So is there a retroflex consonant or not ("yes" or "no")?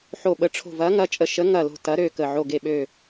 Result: yes